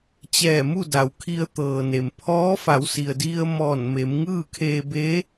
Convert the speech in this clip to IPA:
t͡ɕ ɛː˧˩ m u˥˨ d a˩ w kʰ i˧ ə̯ t̪ ɤː˩ n e˩ m pʰ ɔː˧˥ f a˩˧ w s i˩ ə̯ d i˧ ə̯ m ɔː˧˩ n m e˩˧ m ŋ ɯː˥˨ kʰ eː˧ b e˧˥

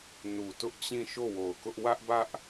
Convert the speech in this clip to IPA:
n u˨ t ʊ˦ ʔ t͡ɕ ĩ˦˨ ʃ o˦˨ w o˨ ʊ̯ k ʊ˦ ʔ w ä˦ ʔ b ä˦ ʔ

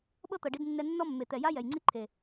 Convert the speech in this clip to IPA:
ɓ ɤ˦ t̪ ɤ˨ ɖ i˧ d nː ɛ˧ nː ɔ˦ mː e˨ t̪ ɛ˨ j a˦ j ɛ˨ j ŋ͡ǀ i˦ ǃʰ e˨

